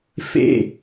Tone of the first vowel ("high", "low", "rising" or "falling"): falling